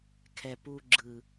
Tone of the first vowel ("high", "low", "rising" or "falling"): low